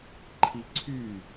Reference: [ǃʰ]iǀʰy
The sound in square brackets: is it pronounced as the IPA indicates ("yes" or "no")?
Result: yes